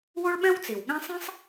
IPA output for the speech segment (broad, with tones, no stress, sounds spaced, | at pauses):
w o˥ ɭ ɓ ɛ̃˥ w t͡s i˩ w ɠ ɛ̃˥ sˤ ĩ˥ sˤ